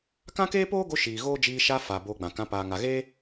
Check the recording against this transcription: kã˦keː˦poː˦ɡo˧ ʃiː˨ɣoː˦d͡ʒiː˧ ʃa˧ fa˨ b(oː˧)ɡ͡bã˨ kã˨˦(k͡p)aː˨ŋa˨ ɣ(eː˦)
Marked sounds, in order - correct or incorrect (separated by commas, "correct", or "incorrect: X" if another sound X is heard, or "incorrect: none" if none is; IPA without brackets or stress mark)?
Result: correct, incorrect: p, correct